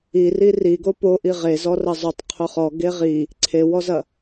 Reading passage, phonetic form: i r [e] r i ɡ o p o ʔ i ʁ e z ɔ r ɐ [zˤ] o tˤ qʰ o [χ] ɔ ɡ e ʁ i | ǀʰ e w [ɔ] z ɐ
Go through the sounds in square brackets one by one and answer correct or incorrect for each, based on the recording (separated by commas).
incorrect, correct, correct, correct